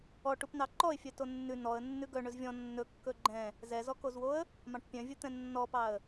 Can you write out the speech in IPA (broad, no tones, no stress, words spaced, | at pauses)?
ɔ ʈupnɑǃɔɪ̯fʲœ tonːʉ nɔə̯ nːʉɡœ ɳɵzvʲɔ̃ nːɵkːɵ ɡ͡ǃɛ̃ | zɛzɔkozwoə̯ | mɑ̃ʈpʲœ̃vʲɵt̪ɛ̃ nːɔpɑə̯